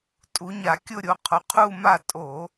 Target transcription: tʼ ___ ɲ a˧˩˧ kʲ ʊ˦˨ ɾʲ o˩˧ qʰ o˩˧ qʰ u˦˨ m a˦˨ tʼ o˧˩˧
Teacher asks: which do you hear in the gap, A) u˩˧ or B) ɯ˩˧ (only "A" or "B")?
A